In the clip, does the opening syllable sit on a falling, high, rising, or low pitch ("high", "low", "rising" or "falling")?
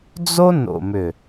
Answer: high